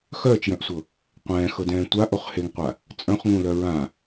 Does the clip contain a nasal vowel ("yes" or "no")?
yes